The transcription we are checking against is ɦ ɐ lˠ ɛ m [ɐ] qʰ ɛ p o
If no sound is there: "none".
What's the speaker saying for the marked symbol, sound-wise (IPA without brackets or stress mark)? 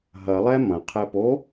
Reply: ɐ̃